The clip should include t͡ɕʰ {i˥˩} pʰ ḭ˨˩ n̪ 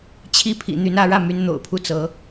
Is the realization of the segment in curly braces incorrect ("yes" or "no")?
no